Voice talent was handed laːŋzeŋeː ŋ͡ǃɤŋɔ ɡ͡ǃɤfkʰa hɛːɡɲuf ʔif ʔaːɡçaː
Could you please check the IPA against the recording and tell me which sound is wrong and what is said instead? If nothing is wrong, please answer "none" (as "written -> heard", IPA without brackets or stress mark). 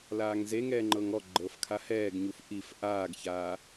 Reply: eː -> ɛː